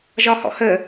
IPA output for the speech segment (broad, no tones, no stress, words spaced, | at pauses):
ʒɒhɔ̰hə